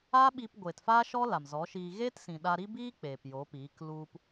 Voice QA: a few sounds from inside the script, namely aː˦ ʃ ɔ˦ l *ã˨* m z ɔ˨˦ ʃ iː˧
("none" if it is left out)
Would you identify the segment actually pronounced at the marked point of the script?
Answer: a˨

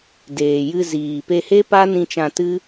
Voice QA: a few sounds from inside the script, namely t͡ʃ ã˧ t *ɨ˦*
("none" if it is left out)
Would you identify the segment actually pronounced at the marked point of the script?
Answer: ɨ˦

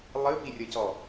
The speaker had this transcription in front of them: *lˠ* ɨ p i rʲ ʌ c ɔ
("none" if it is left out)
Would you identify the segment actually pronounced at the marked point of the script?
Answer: lˠ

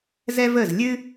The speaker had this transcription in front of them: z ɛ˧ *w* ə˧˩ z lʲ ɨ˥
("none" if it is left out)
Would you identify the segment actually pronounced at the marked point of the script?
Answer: v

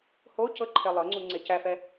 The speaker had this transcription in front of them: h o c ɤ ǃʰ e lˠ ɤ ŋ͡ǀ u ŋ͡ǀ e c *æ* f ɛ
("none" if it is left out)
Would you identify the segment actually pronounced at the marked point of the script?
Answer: æ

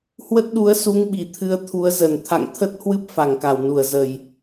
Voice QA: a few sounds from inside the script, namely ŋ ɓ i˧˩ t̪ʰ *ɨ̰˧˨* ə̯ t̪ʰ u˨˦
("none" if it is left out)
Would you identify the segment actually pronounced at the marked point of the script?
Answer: ɨ˧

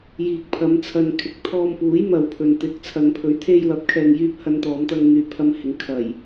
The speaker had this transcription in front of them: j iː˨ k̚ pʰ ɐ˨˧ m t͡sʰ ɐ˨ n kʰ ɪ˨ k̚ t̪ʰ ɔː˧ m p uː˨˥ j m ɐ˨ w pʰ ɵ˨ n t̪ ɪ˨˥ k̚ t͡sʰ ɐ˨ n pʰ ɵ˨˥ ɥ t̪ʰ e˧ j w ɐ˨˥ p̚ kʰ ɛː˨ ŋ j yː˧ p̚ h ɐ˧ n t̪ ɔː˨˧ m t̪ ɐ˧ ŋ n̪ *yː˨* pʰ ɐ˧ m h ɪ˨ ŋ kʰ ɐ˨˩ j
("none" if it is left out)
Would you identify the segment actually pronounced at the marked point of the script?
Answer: yː˨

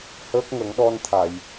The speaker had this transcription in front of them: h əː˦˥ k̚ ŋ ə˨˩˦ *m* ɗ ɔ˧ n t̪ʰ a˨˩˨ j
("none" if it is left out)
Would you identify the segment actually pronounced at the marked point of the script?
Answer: ŋ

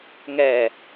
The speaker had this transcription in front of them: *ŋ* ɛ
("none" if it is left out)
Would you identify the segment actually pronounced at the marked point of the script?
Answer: ŋ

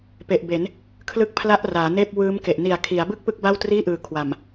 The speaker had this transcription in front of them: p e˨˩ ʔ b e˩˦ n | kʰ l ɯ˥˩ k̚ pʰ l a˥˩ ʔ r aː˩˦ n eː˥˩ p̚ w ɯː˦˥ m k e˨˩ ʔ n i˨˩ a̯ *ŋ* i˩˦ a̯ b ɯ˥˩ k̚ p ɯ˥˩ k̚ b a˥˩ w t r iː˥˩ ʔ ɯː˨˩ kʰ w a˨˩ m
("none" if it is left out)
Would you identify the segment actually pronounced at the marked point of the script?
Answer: kʰ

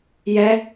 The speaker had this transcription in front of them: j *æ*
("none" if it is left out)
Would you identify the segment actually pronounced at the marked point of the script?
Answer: ɛ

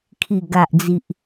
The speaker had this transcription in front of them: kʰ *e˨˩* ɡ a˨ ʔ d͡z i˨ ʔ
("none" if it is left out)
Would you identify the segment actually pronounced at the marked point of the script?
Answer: i˨˩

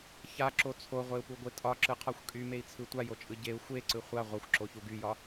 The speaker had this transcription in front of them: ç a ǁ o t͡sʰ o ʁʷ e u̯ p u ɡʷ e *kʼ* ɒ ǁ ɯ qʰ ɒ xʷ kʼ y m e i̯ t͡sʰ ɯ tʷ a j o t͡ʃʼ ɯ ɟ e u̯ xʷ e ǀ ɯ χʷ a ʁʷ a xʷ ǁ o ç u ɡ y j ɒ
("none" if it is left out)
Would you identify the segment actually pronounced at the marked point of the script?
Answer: tʼ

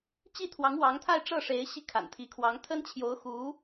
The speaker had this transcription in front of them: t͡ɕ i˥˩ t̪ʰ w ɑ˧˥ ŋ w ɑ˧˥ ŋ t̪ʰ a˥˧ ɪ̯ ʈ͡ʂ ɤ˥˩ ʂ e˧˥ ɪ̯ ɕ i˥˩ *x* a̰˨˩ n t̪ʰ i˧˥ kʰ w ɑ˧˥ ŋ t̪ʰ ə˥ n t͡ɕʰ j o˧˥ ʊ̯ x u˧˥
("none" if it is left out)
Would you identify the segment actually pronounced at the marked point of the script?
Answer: kʰ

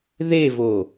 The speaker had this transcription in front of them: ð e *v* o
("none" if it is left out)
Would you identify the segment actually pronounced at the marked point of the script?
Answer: v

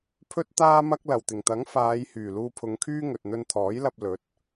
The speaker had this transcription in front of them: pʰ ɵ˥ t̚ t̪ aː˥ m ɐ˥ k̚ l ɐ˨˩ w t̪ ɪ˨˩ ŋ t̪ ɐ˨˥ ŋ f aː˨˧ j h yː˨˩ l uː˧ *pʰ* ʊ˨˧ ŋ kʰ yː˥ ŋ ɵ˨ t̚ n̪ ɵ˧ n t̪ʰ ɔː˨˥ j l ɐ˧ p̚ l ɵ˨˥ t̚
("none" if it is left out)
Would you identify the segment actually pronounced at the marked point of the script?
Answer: pʰ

